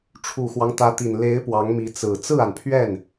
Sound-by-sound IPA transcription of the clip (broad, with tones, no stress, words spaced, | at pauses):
ʈ͡ʂʰu˨˩xwɑ˦ŋt̪ä˧˥t̪i˨˩n le˧˥ɪ̯ pwɑ˧˥ŋmi˧˥ t͡sɹ̩˨˩ t͡sɹ̩˥˩a˩npʰɥɛ˥˩n